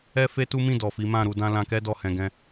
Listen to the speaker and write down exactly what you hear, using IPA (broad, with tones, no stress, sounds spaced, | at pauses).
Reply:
ɛ˦ f e˦ t u˦ m ĩ˦˨ d ɔ˨ f i˨˦ m ã˦˨ ɾ u˧ d ã˦ l ã˧ k ɛ˦ d ɔ˦˨ h ɛ̃˧ ɡ ɛ̃˦